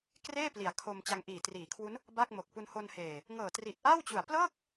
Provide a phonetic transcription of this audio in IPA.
k r eː˥˩ p l i˨˩ a̯ kʰ o˧ m t͡ɕ a˧ ŋ ʔ iː˨˩ t r iː˩˦ kʰ w u˦˥ n | b a˥˩ k̚ m o˨˩ k̚ p u˧ n h o˧ n h eː˨˩ | ŋ ɤː˨˩ t r i˨˩ t̚ ʔ a˥˩ w t͡ɕ u˨˩ a̯ p l ɤː˥˩ k̚

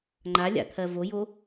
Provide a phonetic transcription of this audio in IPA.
ŋ͡ǃ a lʲ a̰ t̪ʰ ɜ v o j o

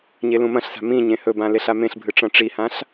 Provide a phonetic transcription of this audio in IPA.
ɲ e l ũ m ɐ̃ ɬ s a̤ m ĩ ɲ ẽ h ɵ b ã l e ɬ a m ẽ ɬ bʱ ɨ ʈ͡ʂ ɐ̃ ʈ͡ʂ i h ã ɬ

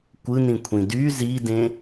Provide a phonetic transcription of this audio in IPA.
kʷ ɯ n ĩ kʷʰ ĩ d y z i d ẽ

